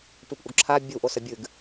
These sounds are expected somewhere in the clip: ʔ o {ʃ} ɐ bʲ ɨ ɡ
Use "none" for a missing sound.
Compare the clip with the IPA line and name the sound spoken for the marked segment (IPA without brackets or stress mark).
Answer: s